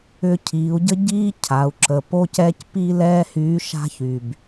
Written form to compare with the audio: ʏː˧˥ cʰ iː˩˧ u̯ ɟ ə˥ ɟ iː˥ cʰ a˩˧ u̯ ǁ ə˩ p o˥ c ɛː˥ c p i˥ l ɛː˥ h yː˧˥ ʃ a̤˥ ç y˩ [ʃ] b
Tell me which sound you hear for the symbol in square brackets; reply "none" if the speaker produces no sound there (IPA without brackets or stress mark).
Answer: none